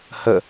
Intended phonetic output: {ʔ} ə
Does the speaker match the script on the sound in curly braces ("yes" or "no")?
no